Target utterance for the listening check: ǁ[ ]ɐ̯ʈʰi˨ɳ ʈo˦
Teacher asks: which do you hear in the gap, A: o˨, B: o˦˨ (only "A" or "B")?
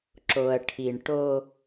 A